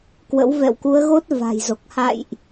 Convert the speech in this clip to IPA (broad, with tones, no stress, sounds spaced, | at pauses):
k w ə̰˧˥ w v ɛ̰˧˨ w k u˨˦ ə̯ ɣ o˦˥ t̚ v a̤˨˩ j z o˨˩ k̚ h a̰˧˨ j ʔ